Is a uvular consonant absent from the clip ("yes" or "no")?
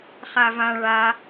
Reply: no